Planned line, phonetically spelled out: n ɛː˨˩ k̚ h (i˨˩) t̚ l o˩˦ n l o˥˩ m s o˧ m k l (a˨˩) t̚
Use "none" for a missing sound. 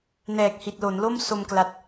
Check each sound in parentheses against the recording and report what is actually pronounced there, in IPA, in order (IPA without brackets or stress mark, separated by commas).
i˨˩, a˨˩